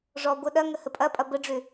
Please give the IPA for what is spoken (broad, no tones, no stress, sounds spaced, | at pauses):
ʐ ɔ ɡʷ ə ɗ ɐ ŋ ə h ə pʼ ɐ pʼ ɐ b ə ɖ͡ʐ ø